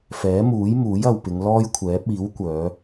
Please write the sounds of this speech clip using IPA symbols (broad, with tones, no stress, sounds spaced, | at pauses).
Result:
f ɛː˨˥ m uː˨˥ j m uː˨˥ j ɐ˨ w p ɪ˨˧ ŋ l ɔː˥ j kʷʰ ɛː˨˥ p̚ iː˨˥ w kʷ œː˨˧